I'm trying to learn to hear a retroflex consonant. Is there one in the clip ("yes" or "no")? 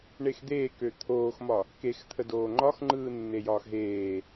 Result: yes